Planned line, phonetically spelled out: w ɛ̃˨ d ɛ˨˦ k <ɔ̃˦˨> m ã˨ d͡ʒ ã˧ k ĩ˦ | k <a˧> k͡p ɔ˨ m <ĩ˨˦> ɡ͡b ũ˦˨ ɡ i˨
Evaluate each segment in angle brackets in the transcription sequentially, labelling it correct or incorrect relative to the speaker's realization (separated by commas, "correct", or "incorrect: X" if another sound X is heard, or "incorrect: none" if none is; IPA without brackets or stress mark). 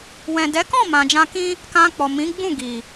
correct, incorrect: ã˧, correct